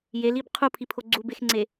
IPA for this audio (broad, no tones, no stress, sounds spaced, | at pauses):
j e l i b qʰ u pʰ i pʰ o ɡ͡ǀ u b e x ŋ͡ǀ e